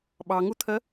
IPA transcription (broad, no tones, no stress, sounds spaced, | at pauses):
ɓ ɑ ŋ u t̪ʰ ɜ